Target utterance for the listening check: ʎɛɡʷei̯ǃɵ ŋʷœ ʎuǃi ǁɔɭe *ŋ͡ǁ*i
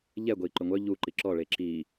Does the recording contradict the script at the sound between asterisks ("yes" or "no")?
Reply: yes